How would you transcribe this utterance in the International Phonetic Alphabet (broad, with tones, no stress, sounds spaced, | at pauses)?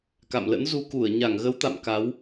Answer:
k a̰˧˨ m l ə̰˧˥ n z u˧ k u˧˩ ə̯ ɲ a˧˩ ŋ ɣ ə˨˦ w t̪ a̰˧˨ m k a˨˦ w